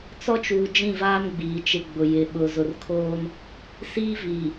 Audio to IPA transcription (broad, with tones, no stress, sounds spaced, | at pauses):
t͡s ɔ˦ t͡ʃ uː˨ d͡ʒ ĩ˦˨ v aː˦ m ɡ͡b iː˨ t͡ʃ ɪ˦ ɡ͡b ʊ˨ j ɪ˨ ɓ ʊ˨ z ʊ˨ r kʰ oː˦ n | s iː˦ v iː˨